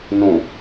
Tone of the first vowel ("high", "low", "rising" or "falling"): low